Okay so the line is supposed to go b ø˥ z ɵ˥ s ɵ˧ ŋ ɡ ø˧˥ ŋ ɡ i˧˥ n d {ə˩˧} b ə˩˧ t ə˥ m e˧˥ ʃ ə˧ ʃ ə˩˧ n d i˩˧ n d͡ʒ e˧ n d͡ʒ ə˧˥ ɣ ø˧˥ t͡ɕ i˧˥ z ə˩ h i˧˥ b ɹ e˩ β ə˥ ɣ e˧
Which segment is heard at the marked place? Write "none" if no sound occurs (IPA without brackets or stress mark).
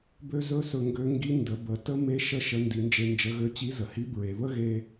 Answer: ə˩˧